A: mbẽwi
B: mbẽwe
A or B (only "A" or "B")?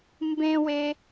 B